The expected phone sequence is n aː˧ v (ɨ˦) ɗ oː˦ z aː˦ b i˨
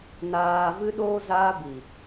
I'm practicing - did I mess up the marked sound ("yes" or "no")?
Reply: no